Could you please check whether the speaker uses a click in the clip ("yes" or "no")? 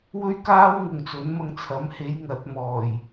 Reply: no